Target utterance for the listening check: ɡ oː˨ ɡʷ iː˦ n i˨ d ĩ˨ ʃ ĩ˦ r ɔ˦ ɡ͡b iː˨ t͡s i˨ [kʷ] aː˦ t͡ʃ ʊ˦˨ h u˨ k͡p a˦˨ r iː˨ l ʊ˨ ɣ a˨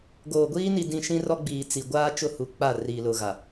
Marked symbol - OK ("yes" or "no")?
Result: no